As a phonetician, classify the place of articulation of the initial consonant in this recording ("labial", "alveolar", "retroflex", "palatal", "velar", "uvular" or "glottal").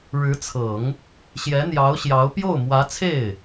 retroflex